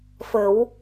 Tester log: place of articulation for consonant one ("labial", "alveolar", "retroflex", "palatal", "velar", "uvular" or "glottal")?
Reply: labial